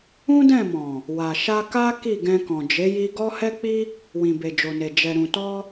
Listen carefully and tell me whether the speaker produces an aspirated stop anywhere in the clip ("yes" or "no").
no